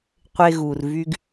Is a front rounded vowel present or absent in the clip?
present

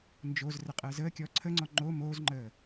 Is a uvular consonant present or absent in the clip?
present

